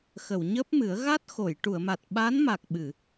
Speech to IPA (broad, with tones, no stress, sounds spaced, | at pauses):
x ə˨˩˨ w ɲ əː˦˥ p̚ m ɨ˨˩˦ ə̯ ɣ a˦˥ t̚ x o˨˩˨ j ʈ u˨˩˨ ə̯ m a˨˩ t̚ ɓ a˧˥ n m a˨˩ k̚ ɓ ɨ˨˩˨